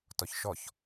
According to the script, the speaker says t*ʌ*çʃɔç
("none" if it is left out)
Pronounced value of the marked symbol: ɔ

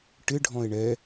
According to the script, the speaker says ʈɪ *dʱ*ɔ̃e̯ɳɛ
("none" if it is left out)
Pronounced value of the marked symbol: ɖʱ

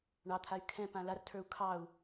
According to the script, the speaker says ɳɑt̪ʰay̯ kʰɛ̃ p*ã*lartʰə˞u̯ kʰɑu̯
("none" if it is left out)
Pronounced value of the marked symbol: ã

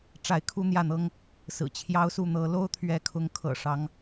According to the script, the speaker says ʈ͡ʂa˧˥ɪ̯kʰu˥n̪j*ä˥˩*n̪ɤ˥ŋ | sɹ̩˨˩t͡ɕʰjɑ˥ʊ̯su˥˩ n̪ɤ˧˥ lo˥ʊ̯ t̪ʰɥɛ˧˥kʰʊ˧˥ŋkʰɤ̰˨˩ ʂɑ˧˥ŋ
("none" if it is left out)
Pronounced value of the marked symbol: ä˥˩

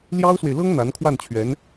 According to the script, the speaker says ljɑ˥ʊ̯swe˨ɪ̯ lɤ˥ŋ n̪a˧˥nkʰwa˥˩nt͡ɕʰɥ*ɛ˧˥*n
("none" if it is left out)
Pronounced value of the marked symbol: ɛ˧˥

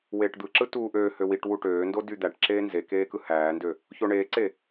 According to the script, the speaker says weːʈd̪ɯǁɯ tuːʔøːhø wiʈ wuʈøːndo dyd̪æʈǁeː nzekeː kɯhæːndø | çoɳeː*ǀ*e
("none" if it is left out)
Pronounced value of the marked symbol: ǀ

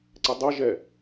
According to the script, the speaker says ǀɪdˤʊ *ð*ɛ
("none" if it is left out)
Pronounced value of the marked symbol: ʒ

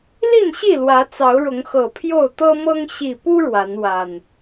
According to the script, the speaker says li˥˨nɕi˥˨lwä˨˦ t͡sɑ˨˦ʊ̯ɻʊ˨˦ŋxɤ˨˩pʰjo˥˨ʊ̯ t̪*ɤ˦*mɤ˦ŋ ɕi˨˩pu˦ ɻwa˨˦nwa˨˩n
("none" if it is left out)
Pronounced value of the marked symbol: ɤ˦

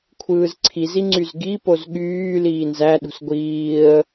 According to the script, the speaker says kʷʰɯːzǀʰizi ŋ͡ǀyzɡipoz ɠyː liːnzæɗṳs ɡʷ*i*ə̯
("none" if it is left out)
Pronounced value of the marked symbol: iː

